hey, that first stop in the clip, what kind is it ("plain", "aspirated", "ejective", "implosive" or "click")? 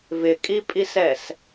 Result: ejective